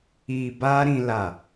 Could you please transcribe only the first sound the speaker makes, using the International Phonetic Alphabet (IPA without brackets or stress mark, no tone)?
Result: i